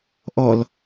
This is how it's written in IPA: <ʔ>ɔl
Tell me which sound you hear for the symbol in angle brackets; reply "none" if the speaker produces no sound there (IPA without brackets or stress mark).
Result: ʔ